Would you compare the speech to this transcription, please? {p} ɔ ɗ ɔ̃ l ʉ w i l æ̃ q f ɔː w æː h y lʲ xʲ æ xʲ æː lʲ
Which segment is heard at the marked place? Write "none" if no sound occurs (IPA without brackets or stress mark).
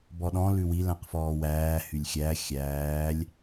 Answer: b